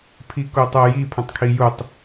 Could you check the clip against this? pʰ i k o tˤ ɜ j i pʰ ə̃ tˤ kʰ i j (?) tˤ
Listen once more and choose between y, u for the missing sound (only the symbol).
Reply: u